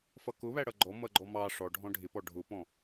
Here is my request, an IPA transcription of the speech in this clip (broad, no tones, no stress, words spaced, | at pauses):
fʌkʊβæ ɽʌɡ͡ǃɔ mʌɡ͡ǃɔmɑ ʂɔɖʱɔ̃ ɖʱɪpɔ ɖʱʊpɔ̃